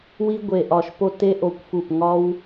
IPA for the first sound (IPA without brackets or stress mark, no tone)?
w